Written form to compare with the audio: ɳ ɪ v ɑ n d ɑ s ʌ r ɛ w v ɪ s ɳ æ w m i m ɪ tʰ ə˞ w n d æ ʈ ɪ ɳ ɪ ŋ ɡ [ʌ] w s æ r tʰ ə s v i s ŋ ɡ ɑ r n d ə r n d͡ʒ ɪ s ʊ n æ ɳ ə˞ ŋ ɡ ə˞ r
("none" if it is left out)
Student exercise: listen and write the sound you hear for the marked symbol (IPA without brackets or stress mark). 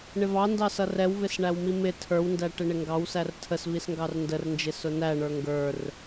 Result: ɑ